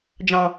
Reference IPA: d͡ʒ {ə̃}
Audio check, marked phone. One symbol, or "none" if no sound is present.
ɑ̃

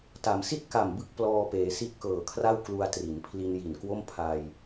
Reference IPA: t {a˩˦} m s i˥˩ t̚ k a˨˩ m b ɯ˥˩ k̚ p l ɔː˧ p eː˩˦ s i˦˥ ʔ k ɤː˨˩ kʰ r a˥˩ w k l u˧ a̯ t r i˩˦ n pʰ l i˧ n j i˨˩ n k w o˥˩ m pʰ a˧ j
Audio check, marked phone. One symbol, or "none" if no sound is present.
a˩˦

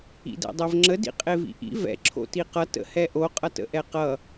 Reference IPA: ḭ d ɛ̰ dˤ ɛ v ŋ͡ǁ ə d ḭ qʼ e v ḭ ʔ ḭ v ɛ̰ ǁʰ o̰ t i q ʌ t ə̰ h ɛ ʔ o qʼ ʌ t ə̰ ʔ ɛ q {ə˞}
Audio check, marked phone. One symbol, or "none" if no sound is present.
ʌ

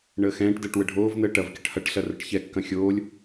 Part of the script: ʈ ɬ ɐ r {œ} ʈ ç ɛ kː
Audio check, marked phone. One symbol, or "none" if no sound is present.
ə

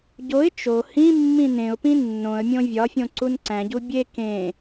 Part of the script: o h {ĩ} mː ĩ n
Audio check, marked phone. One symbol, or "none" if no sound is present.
ĩ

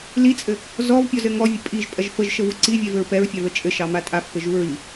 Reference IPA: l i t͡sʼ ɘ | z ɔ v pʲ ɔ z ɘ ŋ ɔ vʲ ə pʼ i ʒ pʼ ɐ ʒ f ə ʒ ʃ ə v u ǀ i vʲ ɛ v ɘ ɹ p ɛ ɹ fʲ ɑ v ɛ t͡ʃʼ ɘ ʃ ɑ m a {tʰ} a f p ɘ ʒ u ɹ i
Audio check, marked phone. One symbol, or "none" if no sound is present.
tʼ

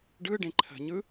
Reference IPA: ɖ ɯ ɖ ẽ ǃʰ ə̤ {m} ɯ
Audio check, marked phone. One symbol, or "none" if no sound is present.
ɲ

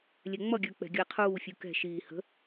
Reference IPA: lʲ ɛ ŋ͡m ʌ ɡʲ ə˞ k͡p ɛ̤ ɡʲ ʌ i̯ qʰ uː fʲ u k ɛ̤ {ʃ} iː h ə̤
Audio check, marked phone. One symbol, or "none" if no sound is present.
ʃ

